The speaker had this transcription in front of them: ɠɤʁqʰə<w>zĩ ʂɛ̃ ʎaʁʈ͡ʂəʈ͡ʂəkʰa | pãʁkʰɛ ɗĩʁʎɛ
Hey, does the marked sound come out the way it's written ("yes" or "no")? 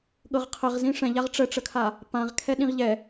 no